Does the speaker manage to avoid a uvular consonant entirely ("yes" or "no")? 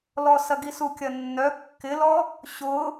yes